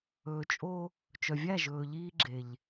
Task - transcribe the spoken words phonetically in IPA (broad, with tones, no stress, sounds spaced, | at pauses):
ɵː˨ t͡ʃʼ o˦ | t͡ʃ œ˨ vʲ æ˦˨ ʒ ɵː˨ ʎ iː˦ ɡ͡ǁ e˨ ʎ